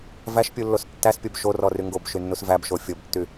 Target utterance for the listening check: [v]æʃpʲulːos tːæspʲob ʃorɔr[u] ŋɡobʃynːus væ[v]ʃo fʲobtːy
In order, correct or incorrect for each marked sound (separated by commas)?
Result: correct, incorrect, incorrect